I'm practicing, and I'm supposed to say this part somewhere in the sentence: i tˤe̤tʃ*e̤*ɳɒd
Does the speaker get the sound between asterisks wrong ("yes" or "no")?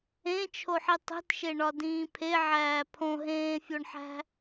yes